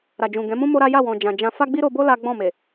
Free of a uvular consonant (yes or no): yes